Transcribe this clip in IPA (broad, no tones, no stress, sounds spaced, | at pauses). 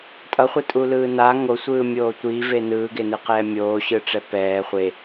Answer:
tʼ ʌ χʷ ɛ tʼ u l ɯː n a ŋ o sʷ ɯː mʲ oː tʷ i v e n ɯː ɡ e n ɯ q ɛː mʲ oː ɕ ɯ ʈ͡ʂ ɛ p ɛː χʷ e